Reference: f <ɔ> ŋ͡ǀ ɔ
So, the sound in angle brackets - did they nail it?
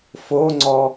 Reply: no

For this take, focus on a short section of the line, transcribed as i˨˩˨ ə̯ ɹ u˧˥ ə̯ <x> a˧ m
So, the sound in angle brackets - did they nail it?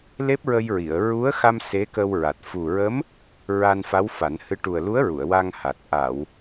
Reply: yes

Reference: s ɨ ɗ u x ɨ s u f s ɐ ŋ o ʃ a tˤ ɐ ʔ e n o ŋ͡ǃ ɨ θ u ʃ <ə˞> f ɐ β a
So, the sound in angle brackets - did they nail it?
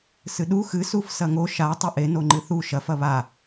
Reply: no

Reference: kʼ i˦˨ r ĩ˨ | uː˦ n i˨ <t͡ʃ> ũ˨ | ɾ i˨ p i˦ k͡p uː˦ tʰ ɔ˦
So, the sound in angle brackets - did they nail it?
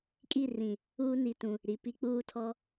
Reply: no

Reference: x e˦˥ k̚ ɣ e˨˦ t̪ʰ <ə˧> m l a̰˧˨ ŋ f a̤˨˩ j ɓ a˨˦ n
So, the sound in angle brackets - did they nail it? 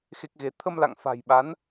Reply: yes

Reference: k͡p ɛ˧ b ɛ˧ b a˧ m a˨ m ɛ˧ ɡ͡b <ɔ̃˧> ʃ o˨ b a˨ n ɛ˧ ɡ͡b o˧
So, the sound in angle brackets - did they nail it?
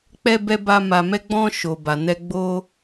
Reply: yes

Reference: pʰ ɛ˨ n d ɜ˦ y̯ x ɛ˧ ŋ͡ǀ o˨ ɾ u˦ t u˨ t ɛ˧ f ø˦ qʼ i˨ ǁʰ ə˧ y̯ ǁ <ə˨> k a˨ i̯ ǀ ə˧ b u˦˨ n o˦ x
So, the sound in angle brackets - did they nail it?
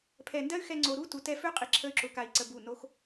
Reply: no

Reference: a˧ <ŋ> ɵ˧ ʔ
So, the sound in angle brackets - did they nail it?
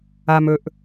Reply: no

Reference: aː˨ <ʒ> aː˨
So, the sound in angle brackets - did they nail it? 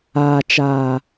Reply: no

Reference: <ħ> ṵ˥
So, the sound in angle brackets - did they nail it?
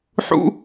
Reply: yes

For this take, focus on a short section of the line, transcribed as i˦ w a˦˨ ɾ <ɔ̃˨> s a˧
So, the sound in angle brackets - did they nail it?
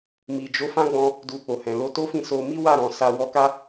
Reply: yes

